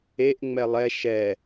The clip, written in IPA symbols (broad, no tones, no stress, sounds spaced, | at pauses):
e ʔ ŋ͡m ɛ lˠ ɛ ʃ ɛ